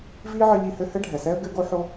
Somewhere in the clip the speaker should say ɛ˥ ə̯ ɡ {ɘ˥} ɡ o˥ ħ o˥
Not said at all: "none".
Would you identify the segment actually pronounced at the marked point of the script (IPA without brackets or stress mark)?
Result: ɘ˥